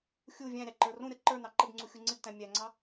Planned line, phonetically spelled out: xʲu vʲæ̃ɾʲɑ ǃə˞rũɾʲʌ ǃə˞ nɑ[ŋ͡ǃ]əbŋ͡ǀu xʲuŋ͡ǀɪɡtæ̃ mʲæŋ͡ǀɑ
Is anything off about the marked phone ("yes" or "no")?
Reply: yes